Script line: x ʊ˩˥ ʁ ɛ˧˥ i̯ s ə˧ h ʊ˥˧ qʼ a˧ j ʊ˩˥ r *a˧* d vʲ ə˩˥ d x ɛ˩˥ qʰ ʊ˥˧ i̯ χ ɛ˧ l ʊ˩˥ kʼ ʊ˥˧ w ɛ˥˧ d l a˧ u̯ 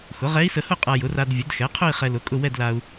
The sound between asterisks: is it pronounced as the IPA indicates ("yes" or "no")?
yes